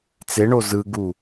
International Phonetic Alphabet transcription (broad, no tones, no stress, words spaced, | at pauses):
t͡seɳo zɯɡu